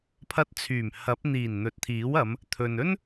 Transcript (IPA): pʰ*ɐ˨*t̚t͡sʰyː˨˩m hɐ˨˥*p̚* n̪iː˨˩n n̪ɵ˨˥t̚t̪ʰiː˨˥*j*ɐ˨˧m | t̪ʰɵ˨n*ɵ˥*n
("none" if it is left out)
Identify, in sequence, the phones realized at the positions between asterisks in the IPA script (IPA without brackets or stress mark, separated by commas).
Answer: ɐ˧, p̚, w, ɵ˥